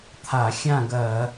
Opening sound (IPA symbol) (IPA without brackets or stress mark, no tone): t̪ʰ